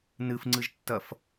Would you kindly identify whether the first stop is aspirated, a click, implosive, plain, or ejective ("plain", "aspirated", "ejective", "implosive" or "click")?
click